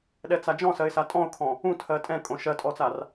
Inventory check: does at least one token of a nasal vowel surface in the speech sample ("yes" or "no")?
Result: yes